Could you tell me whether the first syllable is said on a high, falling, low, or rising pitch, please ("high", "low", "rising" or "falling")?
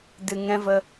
low